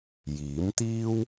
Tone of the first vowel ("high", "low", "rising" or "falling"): rising